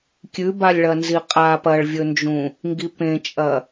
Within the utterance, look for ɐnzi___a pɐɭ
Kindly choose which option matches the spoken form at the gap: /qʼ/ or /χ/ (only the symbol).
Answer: qʼ